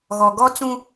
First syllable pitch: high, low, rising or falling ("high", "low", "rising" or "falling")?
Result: low